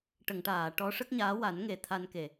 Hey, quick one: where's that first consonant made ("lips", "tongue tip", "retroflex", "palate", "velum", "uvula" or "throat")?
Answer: retroflex